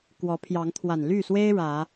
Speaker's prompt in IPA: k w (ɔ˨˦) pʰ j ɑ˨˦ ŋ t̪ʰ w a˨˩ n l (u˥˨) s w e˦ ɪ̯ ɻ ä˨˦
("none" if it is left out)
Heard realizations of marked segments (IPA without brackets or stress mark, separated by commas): ɔ˨˦, y˥˨